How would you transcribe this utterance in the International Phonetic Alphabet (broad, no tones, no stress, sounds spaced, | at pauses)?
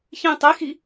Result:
ç ĩ tˤ i x i